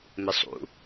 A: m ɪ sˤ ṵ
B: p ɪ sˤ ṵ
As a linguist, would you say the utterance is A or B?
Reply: A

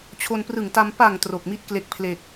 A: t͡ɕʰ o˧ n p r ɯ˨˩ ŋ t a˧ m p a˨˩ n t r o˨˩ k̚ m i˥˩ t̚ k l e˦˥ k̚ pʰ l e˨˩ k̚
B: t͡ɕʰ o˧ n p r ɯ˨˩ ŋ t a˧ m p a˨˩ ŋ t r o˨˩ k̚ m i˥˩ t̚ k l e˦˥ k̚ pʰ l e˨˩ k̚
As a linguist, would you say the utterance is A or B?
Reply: B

